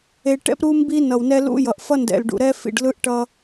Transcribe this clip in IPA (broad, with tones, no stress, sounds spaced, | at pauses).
e˨ ʈ ɛ̰˦ p ɾ u˦ m b i˦ n ʌ˨ w n ɛ˦ l ṵ˦ j ʌ˨ ʔ f ʌ˦ n d ɛ̰˨ l ɖ ṵ˨ ɾ ɛ˦ f ḭ˨ ɖ l ɯ˦ ʔ ʈ ʌ˦